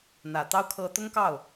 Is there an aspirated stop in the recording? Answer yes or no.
yes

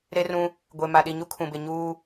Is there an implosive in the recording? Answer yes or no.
yes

